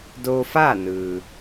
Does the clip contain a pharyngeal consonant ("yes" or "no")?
no